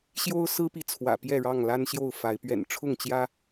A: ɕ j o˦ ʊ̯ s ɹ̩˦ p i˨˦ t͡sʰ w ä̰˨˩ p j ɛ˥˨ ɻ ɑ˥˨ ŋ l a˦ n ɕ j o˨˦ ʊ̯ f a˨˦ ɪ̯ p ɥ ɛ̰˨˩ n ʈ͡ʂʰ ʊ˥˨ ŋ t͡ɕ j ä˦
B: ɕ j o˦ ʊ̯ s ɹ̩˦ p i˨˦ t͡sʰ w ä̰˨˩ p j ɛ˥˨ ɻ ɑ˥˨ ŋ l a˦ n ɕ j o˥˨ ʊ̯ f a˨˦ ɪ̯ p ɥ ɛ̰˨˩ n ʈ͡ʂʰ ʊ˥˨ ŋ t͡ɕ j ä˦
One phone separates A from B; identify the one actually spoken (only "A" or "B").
B